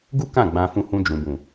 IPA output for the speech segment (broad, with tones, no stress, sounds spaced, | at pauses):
ɡ u˦ k ã˦˨ ɡ͡b ã˧ f ũ˧ h ũ˧ d͡ʒ ũ˨ b ũ˨